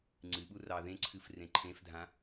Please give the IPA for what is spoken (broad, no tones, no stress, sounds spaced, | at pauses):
ŋ͡ǀ ɨ ɓ u r ɑ ð ẽ ǀʰ ɨ f r ẽ ǃʰ ẽ f dʱ ã